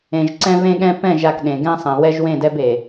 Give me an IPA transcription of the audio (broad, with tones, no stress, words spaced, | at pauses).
ẽ˨ʒǀɛ̃˦vẽ˦ɠɛ̃˦ pɛ̃˦˨ʒa˨k ɗẽ˨ɡɛ̃˦ sˤɛ̃˨wɛ˦ʒ wẽ˦˨dɛ˦be˨